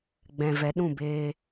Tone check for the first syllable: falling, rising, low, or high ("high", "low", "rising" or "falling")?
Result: low